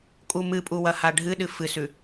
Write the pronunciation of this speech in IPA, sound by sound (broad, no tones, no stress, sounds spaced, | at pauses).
kʼ u m ɨ pʼ u w ɐ h a ɖʱ ɨ ɗ ɨ f ɨ s ʉ